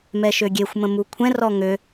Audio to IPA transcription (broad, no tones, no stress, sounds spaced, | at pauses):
m ɛ ʃ ø ɡʲ e xʷ m ə̃ m u kʷʰ ɛ̃ r ɔ ŋ ø